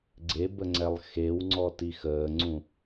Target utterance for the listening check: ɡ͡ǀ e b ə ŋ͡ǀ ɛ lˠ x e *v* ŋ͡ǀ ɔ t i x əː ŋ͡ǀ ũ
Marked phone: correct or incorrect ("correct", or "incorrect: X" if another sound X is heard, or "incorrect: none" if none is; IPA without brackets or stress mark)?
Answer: incorrect: w